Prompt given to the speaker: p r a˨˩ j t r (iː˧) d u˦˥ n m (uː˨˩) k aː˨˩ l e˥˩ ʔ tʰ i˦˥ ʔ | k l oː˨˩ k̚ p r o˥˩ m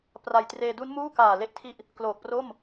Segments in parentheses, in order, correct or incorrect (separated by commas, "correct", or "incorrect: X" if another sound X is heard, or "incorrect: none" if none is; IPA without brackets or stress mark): incorrect: eː˧, incorrect: uː˥˩